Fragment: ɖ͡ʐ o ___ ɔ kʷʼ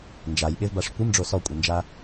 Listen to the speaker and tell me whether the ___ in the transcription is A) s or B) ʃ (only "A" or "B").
A